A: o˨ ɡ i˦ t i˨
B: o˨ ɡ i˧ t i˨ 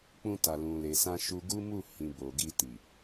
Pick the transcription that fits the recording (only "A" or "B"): B